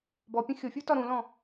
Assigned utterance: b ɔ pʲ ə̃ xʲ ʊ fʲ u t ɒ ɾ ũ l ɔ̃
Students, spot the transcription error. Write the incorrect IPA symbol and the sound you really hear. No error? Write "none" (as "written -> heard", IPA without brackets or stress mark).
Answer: none